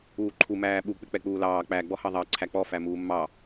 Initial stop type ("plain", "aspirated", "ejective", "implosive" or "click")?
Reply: click